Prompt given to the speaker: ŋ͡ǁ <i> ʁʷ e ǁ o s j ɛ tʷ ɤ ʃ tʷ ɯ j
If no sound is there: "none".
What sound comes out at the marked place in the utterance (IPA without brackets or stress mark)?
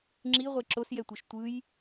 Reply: i